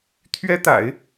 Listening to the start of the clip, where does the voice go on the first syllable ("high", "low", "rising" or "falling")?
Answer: high